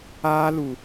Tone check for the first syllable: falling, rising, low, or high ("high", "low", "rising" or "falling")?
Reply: high